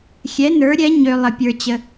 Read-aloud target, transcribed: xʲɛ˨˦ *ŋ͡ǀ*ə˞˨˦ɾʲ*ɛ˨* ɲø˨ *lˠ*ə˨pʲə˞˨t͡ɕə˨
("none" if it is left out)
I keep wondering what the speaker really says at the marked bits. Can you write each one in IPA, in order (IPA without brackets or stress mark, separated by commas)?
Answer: n, ɛ˨˦, lˠ